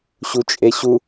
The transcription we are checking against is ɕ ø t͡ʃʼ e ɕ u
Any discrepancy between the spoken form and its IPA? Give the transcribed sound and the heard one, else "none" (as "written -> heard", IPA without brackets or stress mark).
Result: ø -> u